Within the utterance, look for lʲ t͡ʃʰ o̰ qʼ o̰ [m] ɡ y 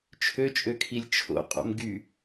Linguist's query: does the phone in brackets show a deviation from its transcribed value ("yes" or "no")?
no